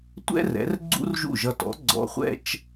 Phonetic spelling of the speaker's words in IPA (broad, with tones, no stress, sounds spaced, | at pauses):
tʷ ɛ̰˥ r ɛ̰˩˥ r ɡ͡ǀ ṵ˥ r ʒ ṵ˥˩ ʒ ʌ˧ t ɔ̰˩˥ ɡ͡ǀ ɔ̰˧ χʷ ɛ̰˥ t͡ʃ